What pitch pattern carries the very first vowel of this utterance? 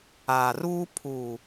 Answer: low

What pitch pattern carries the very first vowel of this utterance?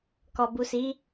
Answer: low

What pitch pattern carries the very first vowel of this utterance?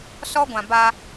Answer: high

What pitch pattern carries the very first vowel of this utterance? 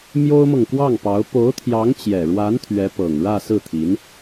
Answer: high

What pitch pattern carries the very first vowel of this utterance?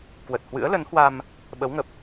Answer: low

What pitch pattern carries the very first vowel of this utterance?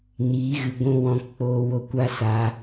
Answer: rising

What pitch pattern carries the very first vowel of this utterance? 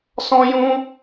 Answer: high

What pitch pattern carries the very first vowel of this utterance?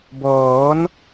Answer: rising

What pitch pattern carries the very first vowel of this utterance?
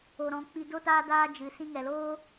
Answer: low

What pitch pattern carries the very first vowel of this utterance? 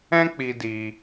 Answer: high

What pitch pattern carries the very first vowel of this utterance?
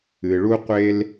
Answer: low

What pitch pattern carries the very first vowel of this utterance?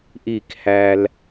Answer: falling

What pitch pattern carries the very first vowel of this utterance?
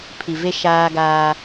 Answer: low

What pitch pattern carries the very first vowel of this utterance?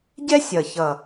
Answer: high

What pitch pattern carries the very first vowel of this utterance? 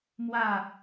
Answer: falling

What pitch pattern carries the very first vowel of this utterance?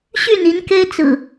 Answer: falling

